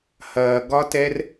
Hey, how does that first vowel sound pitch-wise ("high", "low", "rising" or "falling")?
low